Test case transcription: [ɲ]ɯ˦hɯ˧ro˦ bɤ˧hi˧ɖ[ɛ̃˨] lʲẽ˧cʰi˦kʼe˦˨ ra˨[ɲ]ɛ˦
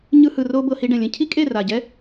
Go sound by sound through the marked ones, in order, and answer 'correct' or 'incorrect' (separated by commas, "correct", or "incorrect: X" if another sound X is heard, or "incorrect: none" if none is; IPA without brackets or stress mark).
correct, correct, incorrect: ɟ